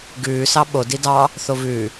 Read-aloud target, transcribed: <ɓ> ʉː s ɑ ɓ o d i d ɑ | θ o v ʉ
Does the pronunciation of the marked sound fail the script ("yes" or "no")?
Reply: yes